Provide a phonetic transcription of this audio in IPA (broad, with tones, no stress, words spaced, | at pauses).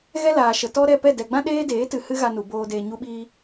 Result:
ɣɛ˦laː˨ʃə˨ tɔ˦ ɾɛ˦˨pɛ˦˨ dɛ˨ɡ͡bã˦ ɗeː˦deː˨˦tɨ˨ hɨ˦ɣa˧nu˨boː˧ deː˧ɲu˦ɓiː˦